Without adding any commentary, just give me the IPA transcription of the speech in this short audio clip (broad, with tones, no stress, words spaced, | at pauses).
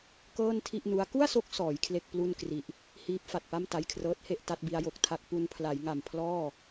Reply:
kɤː˥˩ntʰi˥˩ʔnu˦˥a̯ ku˥˩a̯so˦˥k̚ sɔː˩˦j kʰle˥˩k̚ plu˥˩nkri˨˩ʔ | hiː˦˥p̚fa˨˩t̚pa˥˩m ta˧jkʰrɤː˦˥t̚he˥˩ʔ ta˦˥t̚bi˦˥a̯jo˨˩k̚tʰa˥˩k̚ pu˧npʰla˩˦jŋa˨˩m pʰlɔː˥˩